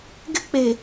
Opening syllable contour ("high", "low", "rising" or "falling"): high